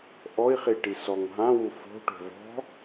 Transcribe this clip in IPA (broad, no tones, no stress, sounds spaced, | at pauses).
ʔ ɔ i̯ χ i ʈ i s ɔ ŋ ɦ ã w u f o̤ ʈ o̤ v ɔ̤